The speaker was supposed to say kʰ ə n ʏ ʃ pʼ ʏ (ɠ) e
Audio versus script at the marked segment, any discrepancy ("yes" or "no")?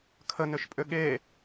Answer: no